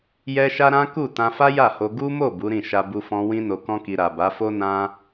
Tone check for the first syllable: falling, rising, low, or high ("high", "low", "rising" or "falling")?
high